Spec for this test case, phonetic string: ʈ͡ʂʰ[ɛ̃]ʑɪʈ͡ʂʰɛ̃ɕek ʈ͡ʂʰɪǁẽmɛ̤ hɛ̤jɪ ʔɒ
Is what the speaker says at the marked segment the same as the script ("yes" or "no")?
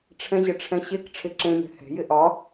yes